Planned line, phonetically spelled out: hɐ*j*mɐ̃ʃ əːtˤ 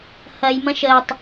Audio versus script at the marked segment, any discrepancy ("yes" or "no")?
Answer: no